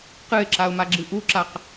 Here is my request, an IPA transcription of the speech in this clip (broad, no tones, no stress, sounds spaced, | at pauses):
q ɨ ɪ̯ ǁ a ʊ̯ m a ɡ͡ǁ ɨ ʔ u ǁ a q